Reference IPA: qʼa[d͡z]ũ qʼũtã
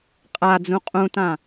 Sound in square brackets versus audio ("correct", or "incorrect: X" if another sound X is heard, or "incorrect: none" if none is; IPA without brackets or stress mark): correct